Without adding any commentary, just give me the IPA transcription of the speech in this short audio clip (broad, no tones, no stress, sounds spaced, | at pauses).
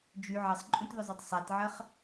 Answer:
d͡ʒ y ʕ ɐ sˤ ǃʼ ũ t ð ʊ zˤ o tˤ sˤ a t ʕ ɐ χ